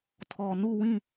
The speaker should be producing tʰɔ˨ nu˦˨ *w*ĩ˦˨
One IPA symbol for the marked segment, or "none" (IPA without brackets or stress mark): w